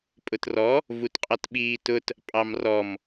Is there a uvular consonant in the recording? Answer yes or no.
yes